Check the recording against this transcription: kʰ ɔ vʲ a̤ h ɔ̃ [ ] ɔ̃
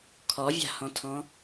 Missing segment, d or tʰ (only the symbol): tʰ